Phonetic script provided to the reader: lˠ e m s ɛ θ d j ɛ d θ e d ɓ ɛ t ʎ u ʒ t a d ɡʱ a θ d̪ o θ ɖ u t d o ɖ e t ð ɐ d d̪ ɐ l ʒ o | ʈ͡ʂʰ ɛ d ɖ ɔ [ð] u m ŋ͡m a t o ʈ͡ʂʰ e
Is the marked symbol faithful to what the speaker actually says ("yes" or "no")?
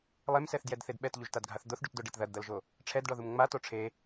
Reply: yes